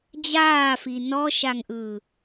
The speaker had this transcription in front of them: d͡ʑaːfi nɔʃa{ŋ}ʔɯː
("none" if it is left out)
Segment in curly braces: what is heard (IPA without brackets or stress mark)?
ŋ